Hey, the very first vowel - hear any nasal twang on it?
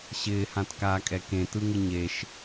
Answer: no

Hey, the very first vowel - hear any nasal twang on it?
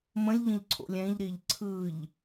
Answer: yes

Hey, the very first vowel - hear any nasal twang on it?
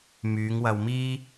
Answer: no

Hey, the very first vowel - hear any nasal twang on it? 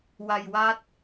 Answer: no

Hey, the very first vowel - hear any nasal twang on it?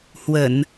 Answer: no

